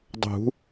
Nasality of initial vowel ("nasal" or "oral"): oral